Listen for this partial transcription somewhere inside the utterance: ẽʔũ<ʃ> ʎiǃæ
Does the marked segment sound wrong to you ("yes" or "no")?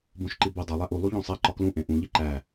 yes